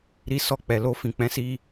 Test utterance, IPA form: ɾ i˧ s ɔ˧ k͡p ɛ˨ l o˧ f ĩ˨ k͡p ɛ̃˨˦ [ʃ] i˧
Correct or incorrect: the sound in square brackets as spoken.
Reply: incorrect: s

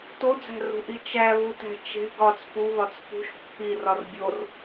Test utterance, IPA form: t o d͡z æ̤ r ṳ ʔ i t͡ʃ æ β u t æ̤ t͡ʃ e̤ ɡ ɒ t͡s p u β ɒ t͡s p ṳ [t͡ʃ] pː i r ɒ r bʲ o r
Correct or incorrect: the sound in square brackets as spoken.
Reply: incorrect: ʃ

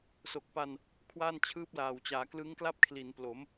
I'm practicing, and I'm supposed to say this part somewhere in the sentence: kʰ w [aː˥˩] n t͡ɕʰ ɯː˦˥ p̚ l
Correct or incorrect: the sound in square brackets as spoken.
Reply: correct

